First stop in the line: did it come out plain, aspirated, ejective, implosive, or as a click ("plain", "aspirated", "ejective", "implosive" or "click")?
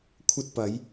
aspirated